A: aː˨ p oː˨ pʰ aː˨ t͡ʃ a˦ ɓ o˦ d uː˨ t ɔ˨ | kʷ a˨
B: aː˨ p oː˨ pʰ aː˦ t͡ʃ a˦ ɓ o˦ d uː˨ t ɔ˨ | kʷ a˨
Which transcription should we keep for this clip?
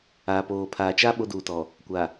A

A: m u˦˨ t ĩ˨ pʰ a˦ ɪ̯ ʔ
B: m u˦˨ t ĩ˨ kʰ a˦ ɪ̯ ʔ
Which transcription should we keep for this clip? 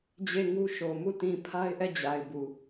A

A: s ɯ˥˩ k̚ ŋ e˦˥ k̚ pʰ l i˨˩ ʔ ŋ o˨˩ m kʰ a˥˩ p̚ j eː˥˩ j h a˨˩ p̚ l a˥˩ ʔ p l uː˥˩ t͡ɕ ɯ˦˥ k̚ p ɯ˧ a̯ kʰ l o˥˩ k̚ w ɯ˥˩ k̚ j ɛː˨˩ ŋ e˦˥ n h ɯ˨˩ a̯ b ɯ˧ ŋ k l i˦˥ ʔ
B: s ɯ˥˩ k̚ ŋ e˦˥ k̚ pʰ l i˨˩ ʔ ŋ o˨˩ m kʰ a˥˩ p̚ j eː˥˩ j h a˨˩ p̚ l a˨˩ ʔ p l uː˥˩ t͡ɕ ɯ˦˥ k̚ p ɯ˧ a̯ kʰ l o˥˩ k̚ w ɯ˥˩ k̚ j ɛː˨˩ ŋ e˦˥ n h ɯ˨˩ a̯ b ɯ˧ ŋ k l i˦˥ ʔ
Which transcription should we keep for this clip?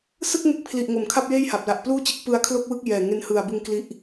B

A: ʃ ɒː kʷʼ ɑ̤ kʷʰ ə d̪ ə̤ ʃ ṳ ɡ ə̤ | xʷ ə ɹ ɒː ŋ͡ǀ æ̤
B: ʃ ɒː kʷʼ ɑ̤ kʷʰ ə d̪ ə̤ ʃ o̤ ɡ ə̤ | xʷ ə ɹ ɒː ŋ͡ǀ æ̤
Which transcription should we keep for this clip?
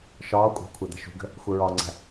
A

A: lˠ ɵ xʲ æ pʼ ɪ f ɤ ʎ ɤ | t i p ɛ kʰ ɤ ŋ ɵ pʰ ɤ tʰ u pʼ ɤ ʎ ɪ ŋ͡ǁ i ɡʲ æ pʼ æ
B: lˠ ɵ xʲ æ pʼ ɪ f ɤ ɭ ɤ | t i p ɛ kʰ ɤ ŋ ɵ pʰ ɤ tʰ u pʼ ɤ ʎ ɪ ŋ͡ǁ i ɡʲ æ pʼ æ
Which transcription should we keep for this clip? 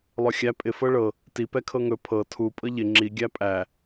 B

